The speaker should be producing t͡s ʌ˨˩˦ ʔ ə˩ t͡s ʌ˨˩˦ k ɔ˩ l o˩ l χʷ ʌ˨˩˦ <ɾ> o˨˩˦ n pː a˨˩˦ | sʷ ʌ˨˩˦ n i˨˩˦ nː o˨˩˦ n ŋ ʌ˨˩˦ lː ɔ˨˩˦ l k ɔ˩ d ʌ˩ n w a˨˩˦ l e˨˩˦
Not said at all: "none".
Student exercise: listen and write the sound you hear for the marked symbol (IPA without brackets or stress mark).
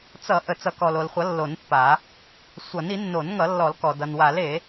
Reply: lː